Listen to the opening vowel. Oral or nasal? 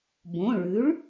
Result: nasal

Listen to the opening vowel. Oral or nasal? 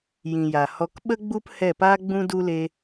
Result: nasal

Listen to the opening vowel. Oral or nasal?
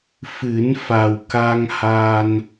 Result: oral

